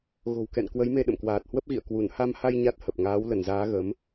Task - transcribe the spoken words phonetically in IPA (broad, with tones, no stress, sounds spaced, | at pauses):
ɣ o̤˨˩ w k ɛ̰˧˨ n k w ə˨˦ j m e˧ ɗ ə̰˧˨ m k w aː˨˩ t̚ h w ə˦˥ p̚ ɣ ḭ˧˨ ə̯ k w u˧˩ n h a˧ m h a˧ j ɲ a˦˥ t̚ h ə˨˩ p̚ ŋ aː˨˦ w l ə˧˩ n z aː˨˦ ɣ ə˨˦ m